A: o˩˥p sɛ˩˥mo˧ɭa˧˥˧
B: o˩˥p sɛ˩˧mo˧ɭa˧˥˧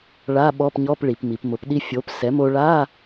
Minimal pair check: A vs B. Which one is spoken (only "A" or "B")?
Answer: A